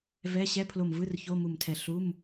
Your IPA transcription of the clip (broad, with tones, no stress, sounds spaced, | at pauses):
v ɛ˧˥˧ ɕ ɛ˧˥˧ pʰ l o˧˩ m v ɯ˧˥˧ r ç o˧˥˧ m u˧˩ m tʰ ɛ˧˩ ɬ u˧˥˧ m